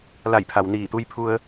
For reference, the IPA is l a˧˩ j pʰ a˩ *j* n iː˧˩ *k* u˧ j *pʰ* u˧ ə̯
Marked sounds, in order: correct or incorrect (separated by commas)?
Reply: incorrect, incorrect, correct